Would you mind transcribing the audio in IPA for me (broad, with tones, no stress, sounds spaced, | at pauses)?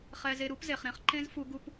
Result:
χ ɛ˧ z e˧ ɾ u˦ p z e˨ χ ɾ ẽ˧ χ ǃ ẽ˦ z f u˦ ɡ u˦ p